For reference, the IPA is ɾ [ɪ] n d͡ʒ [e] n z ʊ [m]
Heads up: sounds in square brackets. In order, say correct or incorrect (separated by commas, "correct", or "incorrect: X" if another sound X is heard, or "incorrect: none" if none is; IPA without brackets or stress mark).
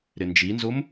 correct, incorrect: i, correct